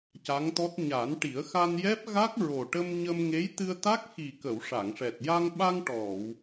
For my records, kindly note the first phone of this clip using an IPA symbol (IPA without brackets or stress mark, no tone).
c